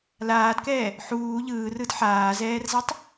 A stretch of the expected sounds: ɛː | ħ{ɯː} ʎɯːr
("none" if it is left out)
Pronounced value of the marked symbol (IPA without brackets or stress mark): uː